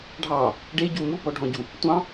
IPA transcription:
ɖʱ ɑ | ɖ e ɟ u m u b ɔ ɖʱ ɔ̃ ɟ u | tʷ ɑ̃

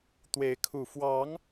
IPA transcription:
t̪ w e˨˦ ɪ̯ kʰ u˨˩ f w ɑ˨˦ ŋ

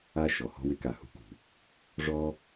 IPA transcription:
a˧ ʃ ɔ˩ h ɔ̤˧ w ɪ˥ k a˩ h ṳ˧ k ṳ˩ | ʐ ɔ˧

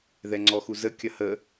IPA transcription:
ð ɛ ŋ͡ǀ ɔ x u z ə kʲ ɐ h ə

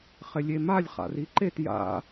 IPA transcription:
χ ɪ lʲ e m a lʲ χ a̰ r i ǃ e t j a̰

